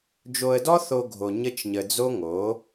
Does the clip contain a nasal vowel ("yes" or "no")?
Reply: no